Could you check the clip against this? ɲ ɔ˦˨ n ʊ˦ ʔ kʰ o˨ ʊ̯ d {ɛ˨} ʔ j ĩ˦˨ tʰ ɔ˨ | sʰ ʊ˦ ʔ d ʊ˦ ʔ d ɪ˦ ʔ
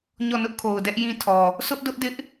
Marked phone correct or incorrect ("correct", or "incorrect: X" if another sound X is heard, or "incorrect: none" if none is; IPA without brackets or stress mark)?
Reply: incorrect: ɛ˦